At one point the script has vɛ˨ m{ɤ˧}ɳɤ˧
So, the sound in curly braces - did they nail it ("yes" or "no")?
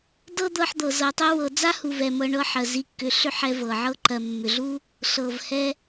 yes